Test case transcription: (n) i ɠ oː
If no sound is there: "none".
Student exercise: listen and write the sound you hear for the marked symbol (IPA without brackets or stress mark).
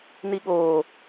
n